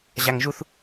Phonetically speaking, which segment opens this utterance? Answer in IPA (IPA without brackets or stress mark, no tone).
ʑ